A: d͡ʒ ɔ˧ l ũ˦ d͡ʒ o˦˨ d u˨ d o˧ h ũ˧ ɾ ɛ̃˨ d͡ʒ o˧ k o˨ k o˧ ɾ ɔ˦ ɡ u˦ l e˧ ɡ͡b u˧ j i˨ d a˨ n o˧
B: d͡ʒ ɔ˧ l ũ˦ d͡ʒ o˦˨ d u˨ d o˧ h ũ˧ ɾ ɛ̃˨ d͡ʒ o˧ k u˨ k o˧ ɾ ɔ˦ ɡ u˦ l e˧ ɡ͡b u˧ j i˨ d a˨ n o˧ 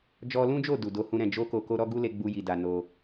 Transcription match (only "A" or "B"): A